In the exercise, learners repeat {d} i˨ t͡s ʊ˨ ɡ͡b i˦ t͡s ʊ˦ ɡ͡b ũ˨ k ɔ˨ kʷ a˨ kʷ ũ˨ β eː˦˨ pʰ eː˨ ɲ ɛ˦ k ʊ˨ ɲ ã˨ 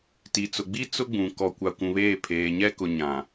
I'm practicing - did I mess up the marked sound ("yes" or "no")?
yes